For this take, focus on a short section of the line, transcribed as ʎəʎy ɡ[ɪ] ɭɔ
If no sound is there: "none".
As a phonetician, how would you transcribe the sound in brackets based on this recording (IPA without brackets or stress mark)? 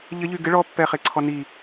ɪ